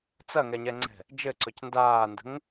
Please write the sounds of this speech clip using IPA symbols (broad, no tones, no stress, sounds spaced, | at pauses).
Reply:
t͡s ɐ ŋ ɛ ɲ ɛ ŋ͡ǀ ɛ̤ | d͡ʒ ɘ ǀ ɵ c n d aː n d ə̤ ŋ